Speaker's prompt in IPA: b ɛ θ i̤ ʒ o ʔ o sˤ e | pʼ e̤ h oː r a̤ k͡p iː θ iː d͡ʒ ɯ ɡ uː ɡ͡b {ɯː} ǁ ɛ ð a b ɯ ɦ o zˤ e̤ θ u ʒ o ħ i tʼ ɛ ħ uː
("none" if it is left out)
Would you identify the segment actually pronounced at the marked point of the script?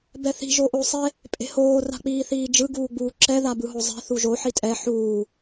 uː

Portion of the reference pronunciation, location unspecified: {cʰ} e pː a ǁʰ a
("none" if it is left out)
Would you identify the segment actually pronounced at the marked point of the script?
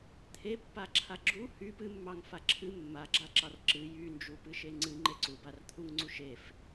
t̪ʰ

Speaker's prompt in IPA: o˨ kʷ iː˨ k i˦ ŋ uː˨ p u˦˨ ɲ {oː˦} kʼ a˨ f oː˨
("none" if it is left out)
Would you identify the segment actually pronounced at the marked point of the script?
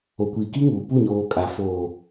oː˨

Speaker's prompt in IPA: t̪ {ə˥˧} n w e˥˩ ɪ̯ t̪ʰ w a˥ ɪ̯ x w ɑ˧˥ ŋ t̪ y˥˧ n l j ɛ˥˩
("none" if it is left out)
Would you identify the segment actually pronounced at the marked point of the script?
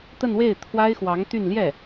ə˥˧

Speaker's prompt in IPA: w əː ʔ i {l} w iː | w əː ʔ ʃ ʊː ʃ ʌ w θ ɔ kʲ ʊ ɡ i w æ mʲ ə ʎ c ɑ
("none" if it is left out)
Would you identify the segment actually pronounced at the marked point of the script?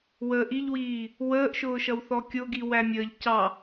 ʎ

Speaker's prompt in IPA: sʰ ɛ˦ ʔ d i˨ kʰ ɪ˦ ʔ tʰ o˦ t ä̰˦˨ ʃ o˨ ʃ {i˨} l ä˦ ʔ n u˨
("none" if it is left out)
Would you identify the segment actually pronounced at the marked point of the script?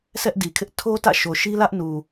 i˦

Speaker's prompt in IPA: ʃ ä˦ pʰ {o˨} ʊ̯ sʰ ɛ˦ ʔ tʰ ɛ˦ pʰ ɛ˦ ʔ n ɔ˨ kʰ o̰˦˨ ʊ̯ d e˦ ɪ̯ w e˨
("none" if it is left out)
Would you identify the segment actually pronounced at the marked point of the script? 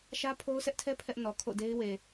o˦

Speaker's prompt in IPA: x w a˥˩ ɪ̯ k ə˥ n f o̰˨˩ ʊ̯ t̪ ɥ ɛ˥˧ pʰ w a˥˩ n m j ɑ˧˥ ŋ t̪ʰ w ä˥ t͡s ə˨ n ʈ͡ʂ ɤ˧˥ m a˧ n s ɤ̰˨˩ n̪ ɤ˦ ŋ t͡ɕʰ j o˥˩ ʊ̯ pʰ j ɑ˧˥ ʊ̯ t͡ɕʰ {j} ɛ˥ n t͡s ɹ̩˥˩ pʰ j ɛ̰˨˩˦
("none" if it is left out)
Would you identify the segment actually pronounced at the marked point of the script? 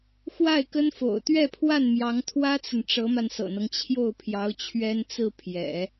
ɥ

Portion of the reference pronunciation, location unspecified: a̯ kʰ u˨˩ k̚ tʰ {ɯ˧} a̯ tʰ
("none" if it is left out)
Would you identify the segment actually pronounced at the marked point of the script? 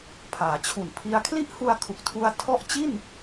u˧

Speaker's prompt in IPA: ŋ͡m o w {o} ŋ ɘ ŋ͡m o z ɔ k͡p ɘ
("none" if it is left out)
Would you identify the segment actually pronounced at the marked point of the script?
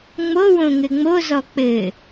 õ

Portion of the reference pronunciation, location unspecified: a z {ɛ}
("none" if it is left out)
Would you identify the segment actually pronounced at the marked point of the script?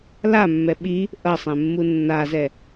ɛ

